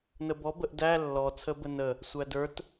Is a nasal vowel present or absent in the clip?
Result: absent